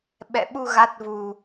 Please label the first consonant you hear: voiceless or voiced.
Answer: voiced